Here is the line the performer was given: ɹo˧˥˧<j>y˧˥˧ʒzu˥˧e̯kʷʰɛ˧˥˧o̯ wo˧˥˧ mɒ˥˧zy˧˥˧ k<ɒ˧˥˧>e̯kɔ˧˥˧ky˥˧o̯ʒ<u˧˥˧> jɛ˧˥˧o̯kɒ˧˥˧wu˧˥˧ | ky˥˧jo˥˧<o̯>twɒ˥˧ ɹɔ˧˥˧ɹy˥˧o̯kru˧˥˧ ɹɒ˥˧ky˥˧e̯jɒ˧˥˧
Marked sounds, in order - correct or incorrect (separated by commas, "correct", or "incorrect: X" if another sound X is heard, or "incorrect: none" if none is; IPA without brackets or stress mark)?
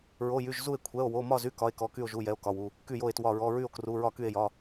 correct, correct, correct, incorrect: e̯